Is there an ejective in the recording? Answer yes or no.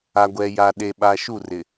no